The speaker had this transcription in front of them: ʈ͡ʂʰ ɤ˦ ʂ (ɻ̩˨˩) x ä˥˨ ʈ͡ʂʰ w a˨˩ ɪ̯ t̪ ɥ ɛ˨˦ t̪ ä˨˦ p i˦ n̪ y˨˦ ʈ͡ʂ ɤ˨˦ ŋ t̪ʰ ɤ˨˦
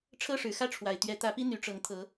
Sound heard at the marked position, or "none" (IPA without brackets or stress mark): ɻ̩˨˩